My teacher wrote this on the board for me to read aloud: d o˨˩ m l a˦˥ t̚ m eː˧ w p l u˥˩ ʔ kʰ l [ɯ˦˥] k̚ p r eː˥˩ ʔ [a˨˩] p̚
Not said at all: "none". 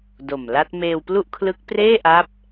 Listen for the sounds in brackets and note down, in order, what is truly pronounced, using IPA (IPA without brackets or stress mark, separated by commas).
ɯ˦˥, a˦˥